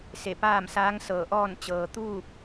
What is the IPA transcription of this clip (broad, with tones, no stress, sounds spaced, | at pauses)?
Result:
s e˧˩ p aː˥˨ m s aː˧˥ ŋ s ɤː˧˩ ʔ ɔː˥˨ n t͡ɕ ɤː˩ t̪ uː˥˨ p̚